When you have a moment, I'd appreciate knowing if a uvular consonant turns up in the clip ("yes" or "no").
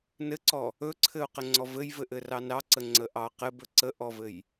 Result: yes